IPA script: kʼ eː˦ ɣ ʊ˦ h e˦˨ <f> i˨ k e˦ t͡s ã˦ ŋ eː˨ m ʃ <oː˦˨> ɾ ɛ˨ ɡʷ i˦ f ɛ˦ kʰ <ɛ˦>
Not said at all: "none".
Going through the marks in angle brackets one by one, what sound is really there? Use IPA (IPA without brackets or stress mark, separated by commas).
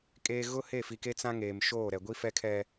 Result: f, oː˦˨, ɛ˦